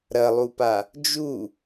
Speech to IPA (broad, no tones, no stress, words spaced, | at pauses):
ɾɐlˠupa | d͡ʒu